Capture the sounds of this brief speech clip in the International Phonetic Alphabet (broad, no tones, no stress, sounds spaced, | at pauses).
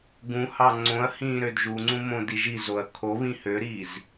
ɡ ũ h ɑ ŋ͡ǀ õ ɐ̯ h ĩː ɾ ø d ʒ u ŋ͡ǀ ũ m õ d i ʒ i z o ɐ̯ kʰ o β ĩ h ø ɾ iː z